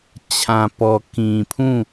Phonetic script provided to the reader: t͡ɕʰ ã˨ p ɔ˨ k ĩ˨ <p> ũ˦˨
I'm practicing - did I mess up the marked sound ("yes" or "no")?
yes